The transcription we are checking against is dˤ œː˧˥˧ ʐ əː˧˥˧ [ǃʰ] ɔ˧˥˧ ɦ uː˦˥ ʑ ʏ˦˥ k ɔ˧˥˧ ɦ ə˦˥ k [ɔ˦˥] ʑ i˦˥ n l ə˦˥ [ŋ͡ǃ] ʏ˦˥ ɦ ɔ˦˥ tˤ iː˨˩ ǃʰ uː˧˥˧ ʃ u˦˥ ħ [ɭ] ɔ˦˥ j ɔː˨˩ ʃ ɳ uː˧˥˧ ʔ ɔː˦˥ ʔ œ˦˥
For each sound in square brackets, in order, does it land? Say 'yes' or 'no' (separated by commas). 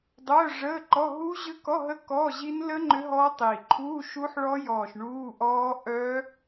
no, no, yes, yes